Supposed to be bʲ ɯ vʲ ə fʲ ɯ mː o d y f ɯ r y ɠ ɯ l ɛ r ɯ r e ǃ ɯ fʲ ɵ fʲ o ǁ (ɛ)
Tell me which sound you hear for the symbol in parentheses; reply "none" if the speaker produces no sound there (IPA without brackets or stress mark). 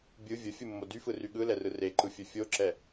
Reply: ɛ